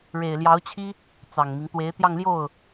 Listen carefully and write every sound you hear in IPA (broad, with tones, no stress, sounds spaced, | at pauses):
ɻ e˨˩ ɪ̯ l j ɑ˧˥ ʊ̯ t͡ɕʰ i˥ | t͡s ɑ˨˩ ŋ m i˦ ŋ t̪ w e˧˥ ɪ̯ t̪ j ɑ˥˧ ŋ l j o˥˩ ʊ̯